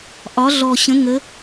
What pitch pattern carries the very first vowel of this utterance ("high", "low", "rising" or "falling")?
rising